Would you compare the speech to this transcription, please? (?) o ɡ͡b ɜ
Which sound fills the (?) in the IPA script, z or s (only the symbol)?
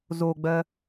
z